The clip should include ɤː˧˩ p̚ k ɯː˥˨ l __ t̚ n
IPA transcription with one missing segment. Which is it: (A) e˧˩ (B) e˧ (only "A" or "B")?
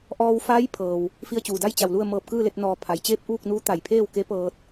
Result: B